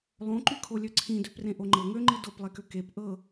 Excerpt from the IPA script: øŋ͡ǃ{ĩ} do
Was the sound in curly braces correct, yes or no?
no